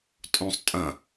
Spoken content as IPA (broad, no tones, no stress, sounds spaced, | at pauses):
tʼ õ sˤ tʼ ɐ̃